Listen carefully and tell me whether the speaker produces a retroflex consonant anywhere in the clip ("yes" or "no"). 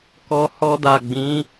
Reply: no